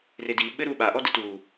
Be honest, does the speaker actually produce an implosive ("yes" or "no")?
yes